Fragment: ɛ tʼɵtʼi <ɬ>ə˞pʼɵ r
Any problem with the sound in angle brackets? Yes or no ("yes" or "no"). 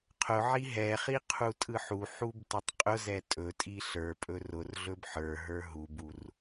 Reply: no